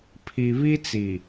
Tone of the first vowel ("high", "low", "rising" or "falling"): low